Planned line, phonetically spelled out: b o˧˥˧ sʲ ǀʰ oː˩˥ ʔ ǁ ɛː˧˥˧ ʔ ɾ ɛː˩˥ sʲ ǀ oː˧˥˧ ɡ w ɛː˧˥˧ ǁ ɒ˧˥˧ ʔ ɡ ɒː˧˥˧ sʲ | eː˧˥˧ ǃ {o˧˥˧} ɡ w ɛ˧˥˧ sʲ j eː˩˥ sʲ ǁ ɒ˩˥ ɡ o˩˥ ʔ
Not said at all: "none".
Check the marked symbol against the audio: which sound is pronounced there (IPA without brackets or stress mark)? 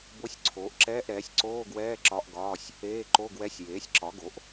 o˧˥˧